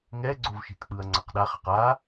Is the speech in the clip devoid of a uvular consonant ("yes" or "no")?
no